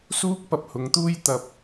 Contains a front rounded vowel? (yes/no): no